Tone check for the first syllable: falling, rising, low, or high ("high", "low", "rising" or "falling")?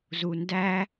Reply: low